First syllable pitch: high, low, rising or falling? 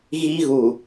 high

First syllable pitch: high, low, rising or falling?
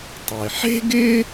low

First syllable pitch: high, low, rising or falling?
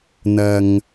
low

